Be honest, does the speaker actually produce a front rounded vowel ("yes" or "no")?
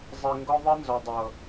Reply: no